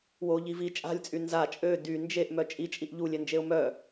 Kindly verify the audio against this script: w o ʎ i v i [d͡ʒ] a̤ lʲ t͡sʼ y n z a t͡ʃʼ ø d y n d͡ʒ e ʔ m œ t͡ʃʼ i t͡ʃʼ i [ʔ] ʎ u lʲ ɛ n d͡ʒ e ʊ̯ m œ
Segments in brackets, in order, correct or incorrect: incorrect: t͡ʃʼ, correct

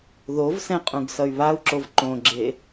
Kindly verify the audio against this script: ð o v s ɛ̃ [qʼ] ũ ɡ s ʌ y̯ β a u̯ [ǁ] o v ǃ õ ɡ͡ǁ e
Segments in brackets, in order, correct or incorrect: correct, correct

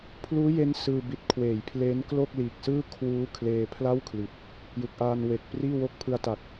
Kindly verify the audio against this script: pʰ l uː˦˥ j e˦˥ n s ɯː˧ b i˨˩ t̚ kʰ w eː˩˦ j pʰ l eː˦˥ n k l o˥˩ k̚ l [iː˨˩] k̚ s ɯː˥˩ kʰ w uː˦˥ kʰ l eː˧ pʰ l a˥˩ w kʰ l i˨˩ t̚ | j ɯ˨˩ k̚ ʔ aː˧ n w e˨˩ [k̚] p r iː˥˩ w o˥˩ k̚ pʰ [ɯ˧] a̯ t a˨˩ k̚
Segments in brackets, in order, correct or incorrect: correct, correct, correct

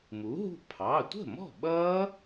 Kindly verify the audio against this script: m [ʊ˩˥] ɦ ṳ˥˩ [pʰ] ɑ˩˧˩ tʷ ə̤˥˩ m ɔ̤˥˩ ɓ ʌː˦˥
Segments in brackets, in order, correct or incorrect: incorrect: u˩˥, correct

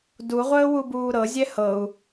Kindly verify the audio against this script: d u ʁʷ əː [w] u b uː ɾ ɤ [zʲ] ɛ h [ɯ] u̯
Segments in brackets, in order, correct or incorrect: correct, correct, incorrect: ɤ

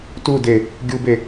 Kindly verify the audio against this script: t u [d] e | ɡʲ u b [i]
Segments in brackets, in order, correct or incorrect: correct, incorrect: e

